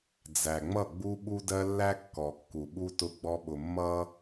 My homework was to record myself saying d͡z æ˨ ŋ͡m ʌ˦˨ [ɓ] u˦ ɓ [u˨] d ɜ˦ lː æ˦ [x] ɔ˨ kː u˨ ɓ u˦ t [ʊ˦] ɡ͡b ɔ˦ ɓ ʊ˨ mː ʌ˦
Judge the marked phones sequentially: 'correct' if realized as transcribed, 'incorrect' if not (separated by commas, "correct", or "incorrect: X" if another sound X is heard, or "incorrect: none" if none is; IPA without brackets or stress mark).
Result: incorrect: ɡ͡b, incorrect: u˦, incorrect: kː, correct